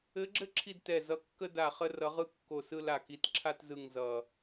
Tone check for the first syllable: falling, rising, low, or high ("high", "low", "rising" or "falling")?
rising